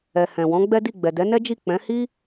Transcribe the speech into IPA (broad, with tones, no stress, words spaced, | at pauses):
ɛ˨hɛ̃˨ wɔ̃˨˦ɡ͡bɛ˦di˦˨ ɡ͡bɛ˨dɛ˨˦nɛ˦d͡ʒi˦˨ k͡pɛ̃˨˦hi˦